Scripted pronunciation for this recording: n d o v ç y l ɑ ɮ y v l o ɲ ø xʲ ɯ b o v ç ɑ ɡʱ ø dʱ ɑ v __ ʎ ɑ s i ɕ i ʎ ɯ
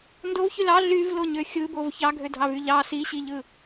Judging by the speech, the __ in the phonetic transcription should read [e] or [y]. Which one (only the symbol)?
y